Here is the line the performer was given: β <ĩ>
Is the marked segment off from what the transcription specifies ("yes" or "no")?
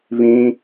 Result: no